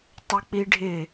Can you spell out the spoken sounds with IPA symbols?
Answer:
tˤ ʊ k͡p i ɖʱ ɪ

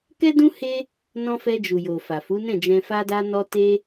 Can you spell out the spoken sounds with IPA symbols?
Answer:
k ɛ˦ d ũ˦ h e˦ | n ɔ̃˧ f ɛ˧ d͡ʒ u˨ j o˨ f a˨ f u˨˦ n ɛ̃˦˨ d͡ʒ ɛ̃˧ f a˧ d a˧ n ɔ˧ t e˦

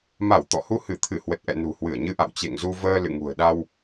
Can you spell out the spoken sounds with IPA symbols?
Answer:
m a˧˩ w t̪ ɔ̰˧˨ h u˧ h ɨ˧˩ t̪ʰ ɨ˧˩ h w ə˨˩ t̚ ʔ ɛ̰˧˨ n ṳ˨˩ h w ɨ˧˩ ə̯ ɲ ɨ˧ ʔ a̰˧˨ w t͡ɕ ḛ˧˨ ŋ z u˧ v əː˧ l ɨ̰˧˨ ŋ ṳ˨˩ ə̯ ɗ a˧ w

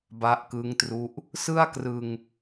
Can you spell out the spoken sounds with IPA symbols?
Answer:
b a˦˥ ʔ k ɯ˦˥ ŋ t r u˦˥ ʔ | s ɯ˥˩ a̯ k r ɯ˧ ŋ

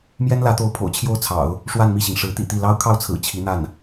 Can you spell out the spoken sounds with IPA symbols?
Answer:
m j ɛ˥ n l ä˧˥ t̪ o˧˥ ʊ̯ pʰ o̰˨˩ ʊ̯ t͡ɕʰ j o˥˩ ʊ̯ t͡sʰ ɑ̰˨˩˦ ʊ̯ | ʂ w a˥˧ n m i˥˩ ɕ i˩ ŋ ʂ ɻ̩˧˥ t̪ ḭ˨˩ t̪ i˥˩ l ɑ˥ ʊ̯ kʰ ɑ˥˩ ʊ̯ t͡sʰ ɹ̩˨˩ t͡ɕʰ i˧˥ n̪ a˥˩ n

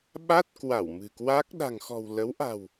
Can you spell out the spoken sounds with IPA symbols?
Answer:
ɓ a˦˥ t̚ k w a˧˩ w m ɨ̤˨˩ k w a˦˥ k̚ ɗ a̤˨˩ ŋ x ɔ̤˨˩ w l ə˨˦ w ʔ a̤˨˩ w

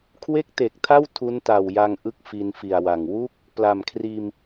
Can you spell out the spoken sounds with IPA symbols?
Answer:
kʰ w e˥˩ k̚ t e˨˩ k̚ tʰ a˥˩ w tʰ u˦˥ n t a˨˩ w j a˧ ŋ ʔ ɯ˥˩ k̚ f i˧ n f i˨˩ a̯ w a˨˩ ŋ w u˥˩ k̚ | p l a˨˩ m kʰ r iː˧ m

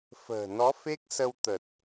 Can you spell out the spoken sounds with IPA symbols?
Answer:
f ə̤ː˨˩ n ɔ˨˦ f e˦˥ k̚ s ə˧ w t̪ ə˨˩ t̚

